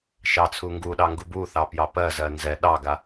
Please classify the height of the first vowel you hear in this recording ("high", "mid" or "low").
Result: low